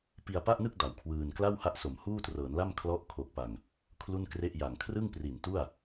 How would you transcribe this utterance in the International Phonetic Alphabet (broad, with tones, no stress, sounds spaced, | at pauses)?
p i˧ a̯ p a˥˩ ʔ n ɯ˥˩ k̚ d a˨˩ w kʰ w ɯː˧ n k l a˥˩ w h a˦˥ ʔ s o˩˦ m h uː˥˩ t r ɤː˩˦ n l a˥˩ m kʰ l ɔ˦˥ ʔ kʰ o˨˩ k̚ p a˨˩ ŋ | kʰ l u˥˩ n k r e˥˩ ʔ j a˨˩ ŋ kʰ r ɯ˥˩ ŋ p r i˨˩ n t u˥˩ a̯